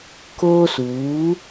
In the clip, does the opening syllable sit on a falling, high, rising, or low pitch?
high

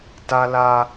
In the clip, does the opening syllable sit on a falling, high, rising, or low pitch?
high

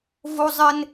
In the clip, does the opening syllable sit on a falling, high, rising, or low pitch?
high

